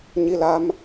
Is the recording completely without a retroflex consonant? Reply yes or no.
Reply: yes